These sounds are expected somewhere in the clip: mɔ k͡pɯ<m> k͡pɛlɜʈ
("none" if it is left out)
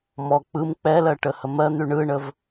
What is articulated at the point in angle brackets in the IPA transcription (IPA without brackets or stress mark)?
m